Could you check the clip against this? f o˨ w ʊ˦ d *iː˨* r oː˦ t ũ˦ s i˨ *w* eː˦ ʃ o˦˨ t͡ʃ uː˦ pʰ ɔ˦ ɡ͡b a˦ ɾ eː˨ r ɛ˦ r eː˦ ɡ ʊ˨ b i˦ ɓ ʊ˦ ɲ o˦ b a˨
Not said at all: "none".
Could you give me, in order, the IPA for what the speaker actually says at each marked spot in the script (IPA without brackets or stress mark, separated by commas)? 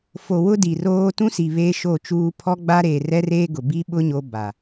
i˨, β